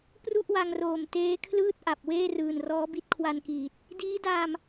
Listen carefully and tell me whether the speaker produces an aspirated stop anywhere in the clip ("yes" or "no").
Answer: yes